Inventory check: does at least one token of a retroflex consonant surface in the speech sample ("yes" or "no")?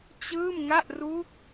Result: no